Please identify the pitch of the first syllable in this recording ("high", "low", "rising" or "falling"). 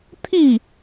falling